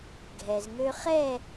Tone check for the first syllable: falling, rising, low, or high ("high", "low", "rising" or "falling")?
low